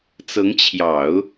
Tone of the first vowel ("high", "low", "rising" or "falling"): rising